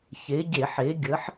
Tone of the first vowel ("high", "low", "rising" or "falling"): rising